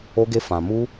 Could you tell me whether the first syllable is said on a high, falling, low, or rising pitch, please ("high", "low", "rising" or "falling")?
high